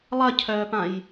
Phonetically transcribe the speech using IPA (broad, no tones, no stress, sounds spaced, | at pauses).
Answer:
lˠ ɐ cʰ œː p ã j